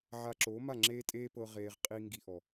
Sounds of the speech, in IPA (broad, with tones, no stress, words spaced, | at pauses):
ʕa˧ǁoː˨˦ma˦˨ ŋ͡ǁeː˦tʼeː˦pɤ˧ ʁeː˨ʁ qʼi˧ ŋɡi˧ʔɔ˨